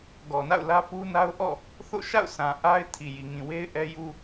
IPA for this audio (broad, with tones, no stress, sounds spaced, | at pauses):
ɡ ɔ˨ n a̰˦˨ ʊ̯ l ä˦ p u˦ n a˦ ʊ̯ ʔ ɔ̰˦˨ | θ o̰˦˨ ʃ a̰˦˨ ʊ̯ s ã˨ ʔ a˦ ɪ̯ tʰ i˨ j i˨ ŋ ĩ˨ w e˦ ɪ̯ ʔ ɛ˦ j u˦